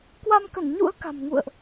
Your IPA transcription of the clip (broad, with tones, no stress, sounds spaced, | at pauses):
k w a˧ m k ə˧˩ n ɲ ṵ˧˥ ə̯ k a̤˨˩ m ŋ ṵ˧˨ ə̯ ʔ